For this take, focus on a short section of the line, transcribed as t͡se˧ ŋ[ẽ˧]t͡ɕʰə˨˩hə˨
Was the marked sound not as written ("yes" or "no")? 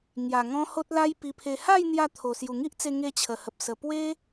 yes